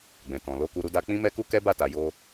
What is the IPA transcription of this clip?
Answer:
ɡ͡b ɛ̃˨ t ɔ̃˨ l o˨˦ k u˧ ɾ u˧ d a˧ k͡p ĩ˦ m ɛ˦ k u˦ k ɛ˦ b a˦˨ t a˨ j o˧

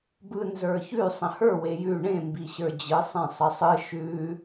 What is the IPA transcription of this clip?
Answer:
b ɯ n z ə˞ ç ʉ sˤ ə̃ h ə˞ w e j ʉ ɳ ẽ m b i ɕ ə˞ d͡ʑ ɯ sˤ ẽ sˤ ə sˤ ɯ ʃ ʉ

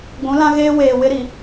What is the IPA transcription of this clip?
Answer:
ɡʷ ũ˨˦ l ã˦ ɣ eː˦ w eː˨ w ɪ˦ ɾ i˨

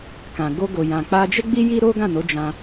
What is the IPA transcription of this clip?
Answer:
k ã˨ ɡ o˧ ɡ o˨ j ã˨ k͡p a˧ d͡ʒ ɛ˦ ɡ͡b i˦ j i˦ ɾ o˦ ɡ ã˦˨ n o˨˦ d͡ʒ ã˧

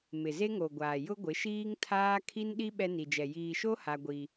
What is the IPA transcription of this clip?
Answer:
m ɪ˨ z e˦ ŋ o˨ ɡʷ aː˨ j ʊ˦ ɡʷ ɪ˨˦ ʃ iː˦ ŋ tʰ aː˦ kʰ i˦ n ɗ i˦ ɓ ɛ˦ n i˨ d͡ʒ ɛ˨ j iː˨ ʃ o˦ h a˦ ɡʷ i˦

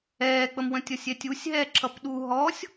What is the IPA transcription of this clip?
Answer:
ɛː k͡p ə m w ə̃ tʲ ʌ sʲ ɛ tʲ u sʲ ɦ ɛː ǁʰ ʌ p ɗ u ɦ ɔ sʲ

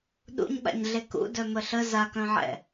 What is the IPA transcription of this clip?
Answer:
ɗ ṵ ɲ ɓ a̰ ɲ ɮ e k ṵ d œ m ə ɬ ə z a k œ̃ ʕ ɛ̰

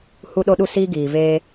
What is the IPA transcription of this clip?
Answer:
h u˦ ɗ o˦ ɗ u˦ s iː˦ ɡ iː˨ v eː˦

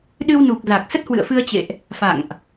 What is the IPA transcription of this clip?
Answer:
ɗ ɨ˧ w n u˨˩ k̚ z a˨˩ k̚ s ə˦˥ t̚ h w ɨ̰˧˨ ə̯ f ɨ˧ ə̯ t͡ɕ ḛ˧˨ ʔ | f a̰˧˨ ŋ ʔ

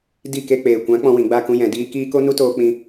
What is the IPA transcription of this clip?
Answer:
d i˦˨ k e˧ k͡p eː˨ kʷ ã˨˦ k͡p ɔ̃˧ w ĩ˨ ɡ͡b a˦˨ k ũ˧ j ɛ̃˨ d iː˧ k iː˦ k o˦ n u˦ t oː˧ k͡p ĩ˧

